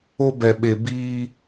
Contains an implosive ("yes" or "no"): yes